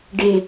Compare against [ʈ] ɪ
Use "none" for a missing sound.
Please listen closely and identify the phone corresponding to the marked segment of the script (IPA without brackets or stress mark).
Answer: ɖ